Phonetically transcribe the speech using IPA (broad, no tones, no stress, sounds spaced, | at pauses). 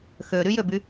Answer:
x ø ɾ y j ø b y